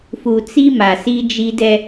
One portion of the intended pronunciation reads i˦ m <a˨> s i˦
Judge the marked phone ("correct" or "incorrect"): correct